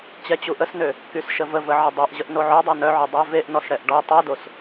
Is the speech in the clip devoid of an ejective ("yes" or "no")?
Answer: yes